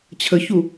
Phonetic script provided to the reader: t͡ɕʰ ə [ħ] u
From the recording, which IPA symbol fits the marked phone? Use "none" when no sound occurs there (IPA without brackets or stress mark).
ç